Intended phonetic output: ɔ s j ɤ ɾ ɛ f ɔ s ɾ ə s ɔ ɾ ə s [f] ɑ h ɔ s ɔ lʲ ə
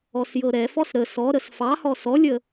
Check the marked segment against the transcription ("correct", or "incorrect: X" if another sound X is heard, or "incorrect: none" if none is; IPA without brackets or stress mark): correct